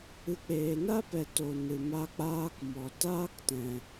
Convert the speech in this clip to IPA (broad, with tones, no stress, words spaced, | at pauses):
ɨ˨˦k͡peː˨na˦pɛ˨ to˨nɨ˨ ma˧k͡paː˧k mɔ˨ taː˦ktɛ̃˨